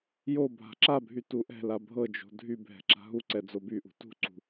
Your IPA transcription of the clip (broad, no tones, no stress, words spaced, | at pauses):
jo bʱa̤ǁabʱy tuʔɛ̤la bʱɤd͡ʒo̤ dʱy bʱɛ̤ǁa̤ɦuǀɛ d͡zobyʔṳ tṳǀṳ